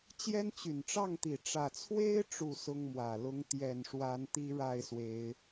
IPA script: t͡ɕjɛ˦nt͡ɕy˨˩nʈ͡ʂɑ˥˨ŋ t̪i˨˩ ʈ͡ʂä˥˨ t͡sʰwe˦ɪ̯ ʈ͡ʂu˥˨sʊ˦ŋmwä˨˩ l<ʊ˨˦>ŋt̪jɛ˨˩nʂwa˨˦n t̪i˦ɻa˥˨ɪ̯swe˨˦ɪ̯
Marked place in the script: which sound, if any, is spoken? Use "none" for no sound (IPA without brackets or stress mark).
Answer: ʊ˨˦